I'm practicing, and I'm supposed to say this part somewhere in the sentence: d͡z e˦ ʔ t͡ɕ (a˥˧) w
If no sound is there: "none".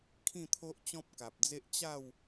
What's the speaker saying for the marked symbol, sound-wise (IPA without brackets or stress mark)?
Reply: a˥˧